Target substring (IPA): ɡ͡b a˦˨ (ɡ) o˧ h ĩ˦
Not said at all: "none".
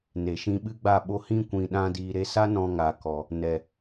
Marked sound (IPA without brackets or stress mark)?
ɓ